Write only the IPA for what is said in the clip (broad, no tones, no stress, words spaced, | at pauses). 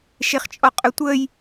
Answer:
ʃeχt͡ʃʼɔqʼœtʷəːj